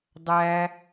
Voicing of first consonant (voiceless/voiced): voiced